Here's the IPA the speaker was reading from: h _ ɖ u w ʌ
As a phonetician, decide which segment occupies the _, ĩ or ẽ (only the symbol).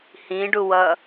ĩ